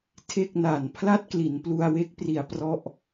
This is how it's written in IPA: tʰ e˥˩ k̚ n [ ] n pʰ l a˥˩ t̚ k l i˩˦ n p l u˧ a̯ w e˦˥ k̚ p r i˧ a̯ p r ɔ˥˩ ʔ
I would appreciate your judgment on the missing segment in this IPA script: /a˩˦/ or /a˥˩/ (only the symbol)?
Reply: a˩˦